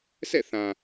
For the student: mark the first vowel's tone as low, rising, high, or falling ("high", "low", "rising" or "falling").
falling